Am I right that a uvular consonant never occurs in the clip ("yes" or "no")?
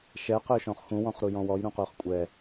no